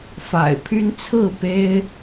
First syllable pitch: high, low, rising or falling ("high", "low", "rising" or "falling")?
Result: low